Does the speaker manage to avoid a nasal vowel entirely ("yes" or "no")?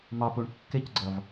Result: yes